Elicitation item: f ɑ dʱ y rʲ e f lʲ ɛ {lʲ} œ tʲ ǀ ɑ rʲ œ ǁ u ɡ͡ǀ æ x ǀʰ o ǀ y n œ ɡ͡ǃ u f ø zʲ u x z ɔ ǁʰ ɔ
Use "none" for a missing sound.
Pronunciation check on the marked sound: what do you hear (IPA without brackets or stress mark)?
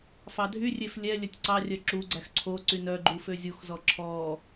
lʲ